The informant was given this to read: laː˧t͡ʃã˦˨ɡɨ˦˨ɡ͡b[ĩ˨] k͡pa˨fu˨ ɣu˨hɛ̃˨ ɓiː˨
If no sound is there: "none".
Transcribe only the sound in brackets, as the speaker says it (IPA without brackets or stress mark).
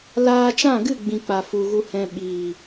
ĩ˨